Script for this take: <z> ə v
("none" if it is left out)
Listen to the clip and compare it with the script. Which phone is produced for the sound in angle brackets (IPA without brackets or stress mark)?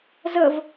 z